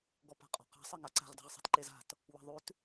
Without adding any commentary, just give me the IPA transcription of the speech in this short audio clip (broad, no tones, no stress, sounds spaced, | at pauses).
ɡ ɔ p a̤ qʼ ɔ̤ q a̤ sˤ e ŋ a ǀ a̤ ʁ d a̤ ʁ sˤ e̤ t ǃ e z a̤ t | w a̤ ðˤ ʉ t